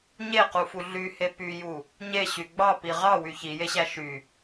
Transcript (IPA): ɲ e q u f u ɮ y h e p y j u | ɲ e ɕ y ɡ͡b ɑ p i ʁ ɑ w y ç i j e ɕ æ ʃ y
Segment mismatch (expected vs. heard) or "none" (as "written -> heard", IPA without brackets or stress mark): none